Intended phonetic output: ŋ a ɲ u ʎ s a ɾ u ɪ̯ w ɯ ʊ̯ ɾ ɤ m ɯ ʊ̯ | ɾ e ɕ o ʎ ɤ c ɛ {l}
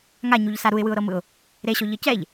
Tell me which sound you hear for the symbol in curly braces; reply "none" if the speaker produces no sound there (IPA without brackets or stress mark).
ʎ